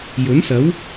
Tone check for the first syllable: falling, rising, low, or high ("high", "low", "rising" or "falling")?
rising